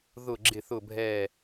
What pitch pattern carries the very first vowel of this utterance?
falling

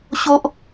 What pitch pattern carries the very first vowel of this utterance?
high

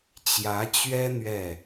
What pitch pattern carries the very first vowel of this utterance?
rising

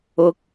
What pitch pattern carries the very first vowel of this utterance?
high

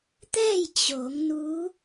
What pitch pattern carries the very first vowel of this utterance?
falling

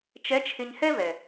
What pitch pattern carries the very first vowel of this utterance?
rising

